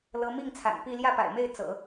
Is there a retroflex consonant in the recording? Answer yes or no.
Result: no